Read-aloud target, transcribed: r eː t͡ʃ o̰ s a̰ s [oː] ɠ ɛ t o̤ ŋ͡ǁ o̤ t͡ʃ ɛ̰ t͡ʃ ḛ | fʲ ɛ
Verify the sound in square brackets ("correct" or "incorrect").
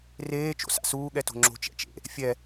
incorrect